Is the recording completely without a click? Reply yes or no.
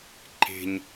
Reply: no